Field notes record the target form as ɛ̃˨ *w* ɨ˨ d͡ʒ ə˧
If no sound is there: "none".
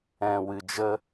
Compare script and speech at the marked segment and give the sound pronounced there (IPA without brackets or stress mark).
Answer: w